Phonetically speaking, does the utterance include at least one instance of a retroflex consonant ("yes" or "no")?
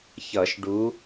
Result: yes